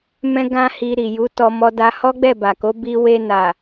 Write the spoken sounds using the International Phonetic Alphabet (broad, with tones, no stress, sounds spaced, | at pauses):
m ɛ̃˦ ɡ ã˦ h i˧ ɾ i˨ j u˨˦ t ɔ˧ m ɔ˧ d a˧ h ɔ˦ ɡ͡b ɛ˦˨ b a˨ k o˨˦ b i˧ w e˧ n a˨